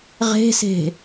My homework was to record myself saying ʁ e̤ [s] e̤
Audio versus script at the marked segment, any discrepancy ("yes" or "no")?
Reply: no